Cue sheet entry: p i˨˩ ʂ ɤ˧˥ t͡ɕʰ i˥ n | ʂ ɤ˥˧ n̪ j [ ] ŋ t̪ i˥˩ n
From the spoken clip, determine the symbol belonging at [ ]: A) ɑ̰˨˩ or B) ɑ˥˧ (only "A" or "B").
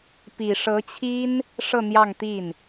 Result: B